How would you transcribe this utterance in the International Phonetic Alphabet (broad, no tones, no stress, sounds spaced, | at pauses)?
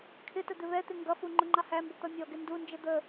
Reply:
kʰ ɪ t ə d̪ ɪ β ɛ t̪ ɪ ŋ ɡ ʌ f u ŋ͡ǃ ʊ ŋ͡ǃ ɑ h æ m b ə t̪ ʌ mʲ ɔ ɡ ɪ n d u n d͡ʒ ə d̪ ə